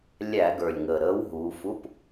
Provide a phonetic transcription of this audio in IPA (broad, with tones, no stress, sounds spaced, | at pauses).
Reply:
lʲ æ˧˩˧ ɡ ə˞˨˩ lʲ ŋ əː˨˩ ɾ əː˨˥ w ɦ uː˩˧ f u˧˥˧ p